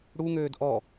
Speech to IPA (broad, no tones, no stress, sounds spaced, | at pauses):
ɽ u ŋ øː d ʔ ɔ